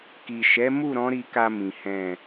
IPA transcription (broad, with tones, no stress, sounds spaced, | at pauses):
k i˨ ʃ ɛ˨˦ m u˦˨ ɾ ɔ̃˨˦ ɾ i˧ k a˧ m ĩ˨ h ɛ̃˨